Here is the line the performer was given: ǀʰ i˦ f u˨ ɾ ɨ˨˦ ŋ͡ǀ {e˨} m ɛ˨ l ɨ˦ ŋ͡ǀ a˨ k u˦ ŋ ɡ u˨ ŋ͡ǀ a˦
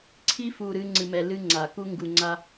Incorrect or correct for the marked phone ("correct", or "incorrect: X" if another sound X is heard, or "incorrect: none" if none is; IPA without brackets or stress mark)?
incorrect: ɨ˨